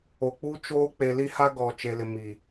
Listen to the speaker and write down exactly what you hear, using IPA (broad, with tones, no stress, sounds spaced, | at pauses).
o˨ k͡p u˦ t͡ʃ oː˦ k͡p e˨ l i˦ h a˦ ɡ ɔ˨ t͡ʃ e˨ l ɪ˨ m i˨